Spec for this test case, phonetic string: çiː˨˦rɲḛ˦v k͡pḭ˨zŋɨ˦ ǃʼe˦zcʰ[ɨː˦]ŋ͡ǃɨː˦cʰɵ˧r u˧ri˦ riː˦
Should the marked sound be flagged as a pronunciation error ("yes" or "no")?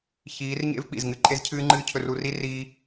no